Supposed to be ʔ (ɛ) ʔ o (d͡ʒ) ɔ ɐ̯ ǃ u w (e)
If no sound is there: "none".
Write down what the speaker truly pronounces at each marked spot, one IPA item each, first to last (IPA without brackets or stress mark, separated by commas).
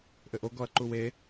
ɘ, ɡ, e